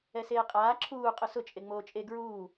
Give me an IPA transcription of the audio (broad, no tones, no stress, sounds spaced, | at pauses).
ɛ s eː qʼ aː ǁʰ uː qʼ ʊ s ʊ t͡ʃʼ e ŋ͡m oː t͡ʃʼ e ɡ ɹ uː